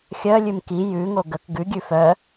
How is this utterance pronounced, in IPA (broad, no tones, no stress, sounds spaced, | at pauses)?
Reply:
xʲ œ lʲ ʉ m k i j ʉ ŋ o ɡ ə k ɡ ʉ ɡʲ ʉ f œ